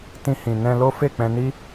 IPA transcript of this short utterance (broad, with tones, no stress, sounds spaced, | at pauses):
t ĩ˧ h ĩ˨ n ɛ̃˧ l o˦ f e˦˨ k͡p ɛ̃˧ n i˦